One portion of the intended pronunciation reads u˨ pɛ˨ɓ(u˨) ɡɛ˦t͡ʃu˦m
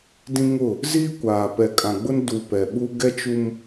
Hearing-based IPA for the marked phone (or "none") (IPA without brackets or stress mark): u˦